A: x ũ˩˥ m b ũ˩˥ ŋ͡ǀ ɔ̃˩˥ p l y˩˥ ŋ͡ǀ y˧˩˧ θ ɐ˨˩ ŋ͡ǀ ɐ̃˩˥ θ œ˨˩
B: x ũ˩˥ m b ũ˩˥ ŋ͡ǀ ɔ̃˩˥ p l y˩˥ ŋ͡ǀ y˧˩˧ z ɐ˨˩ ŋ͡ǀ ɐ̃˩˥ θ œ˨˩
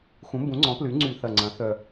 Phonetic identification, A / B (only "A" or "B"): A